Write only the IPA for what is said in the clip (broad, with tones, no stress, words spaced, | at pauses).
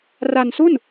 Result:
ra˧nsu˥˩n